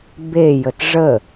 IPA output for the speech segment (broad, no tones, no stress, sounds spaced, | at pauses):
b e j ə t ʐ ə